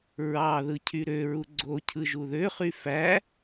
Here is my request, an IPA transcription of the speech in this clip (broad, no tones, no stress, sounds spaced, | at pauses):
ɹ ɑ ð ɯ cʰ y ɾ ø ɹ u ɡ͡ǀ o cʰ ɯ ʒ u ð ø χ y f æ